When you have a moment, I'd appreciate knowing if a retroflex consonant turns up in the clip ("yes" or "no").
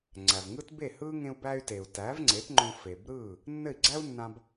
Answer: no